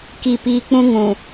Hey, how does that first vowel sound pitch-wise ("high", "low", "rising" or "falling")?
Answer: low